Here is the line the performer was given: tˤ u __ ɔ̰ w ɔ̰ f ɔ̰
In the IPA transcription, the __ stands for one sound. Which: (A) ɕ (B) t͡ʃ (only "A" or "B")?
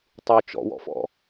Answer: B